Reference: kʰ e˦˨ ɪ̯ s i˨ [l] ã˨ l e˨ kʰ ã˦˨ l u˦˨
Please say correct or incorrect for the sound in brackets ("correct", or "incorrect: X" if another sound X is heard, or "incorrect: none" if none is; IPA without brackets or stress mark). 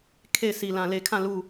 correct